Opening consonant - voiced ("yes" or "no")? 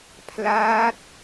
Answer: no